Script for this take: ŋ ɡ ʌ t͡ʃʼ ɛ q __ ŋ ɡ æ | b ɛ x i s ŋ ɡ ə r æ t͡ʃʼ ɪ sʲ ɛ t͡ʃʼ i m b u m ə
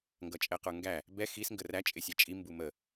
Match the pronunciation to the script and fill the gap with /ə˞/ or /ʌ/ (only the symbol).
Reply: ə˞